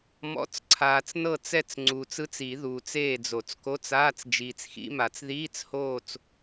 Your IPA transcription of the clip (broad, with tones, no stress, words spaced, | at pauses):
mɔ̰˧˥˧t͡s ǀʰaː˨t͡snɤ˦˨t͡sɛ˦˨t͡s ŋ͡ǀuː˨t͡sɯ˦˥t͡si˨˩˦ ðuː˨t͡seː˦˨d͡zo˨˩˦t͡sko˧˥˧t͡s aː˧˥˧t͡sd͡ʒiː˨t͡sxḭ˦˥ma˨˩˦t͡s ðiː˧˥˧t͡shoː˦˨t͡s